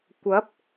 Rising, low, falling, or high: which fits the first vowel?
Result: rising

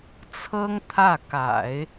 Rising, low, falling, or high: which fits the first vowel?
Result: high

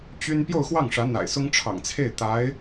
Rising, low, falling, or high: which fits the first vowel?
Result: high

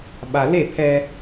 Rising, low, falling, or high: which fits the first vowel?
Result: low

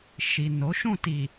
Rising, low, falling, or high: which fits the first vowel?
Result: low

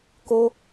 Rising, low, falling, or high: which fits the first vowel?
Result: high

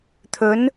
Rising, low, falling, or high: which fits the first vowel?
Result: rising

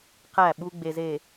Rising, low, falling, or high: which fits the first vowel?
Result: falling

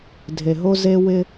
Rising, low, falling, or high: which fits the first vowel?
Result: low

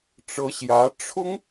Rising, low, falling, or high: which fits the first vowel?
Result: rising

